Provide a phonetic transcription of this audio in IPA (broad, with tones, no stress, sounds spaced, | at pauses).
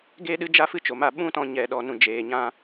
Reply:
ɡ eː˦ ɗ ɨ˦ d͡ʒ a˦ f ɨ˦ t͡ʃ o˨ m a˦˨ ɓ ũ˦ t ɔ̃˧ ɲ ɛ˨ ɗ ɔ˨ n ũ˨ d͡ʒ eː˨ ɲ ã˧